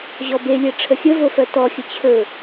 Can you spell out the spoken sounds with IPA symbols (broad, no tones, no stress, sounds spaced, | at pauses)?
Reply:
ʑ ɔ b e lʲ ɛ ʈ͡ʂʰ ə xʲ ə v o f ɜ t ɔ xʲ ə t͡ɕʰ ɵ